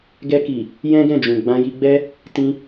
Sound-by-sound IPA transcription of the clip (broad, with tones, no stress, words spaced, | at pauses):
ɡɛ˧ki˨ | jɛ̃˦ɡɛ̃˦˨d͡ʒũ˨ ɡ͡bã˧ ji˧ɡ͡bɛ˦ | tĩ˦